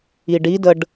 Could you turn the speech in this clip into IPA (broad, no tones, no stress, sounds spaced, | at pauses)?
i ɖ i d ə ɖ